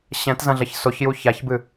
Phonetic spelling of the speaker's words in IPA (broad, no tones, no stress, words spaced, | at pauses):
ɕɛ̃tzɐ̃ɮɐç soçju çaçbɨ